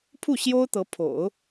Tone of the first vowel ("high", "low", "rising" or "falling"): falling